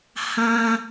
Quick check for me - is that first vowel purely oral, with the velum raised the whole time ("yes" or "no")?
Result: no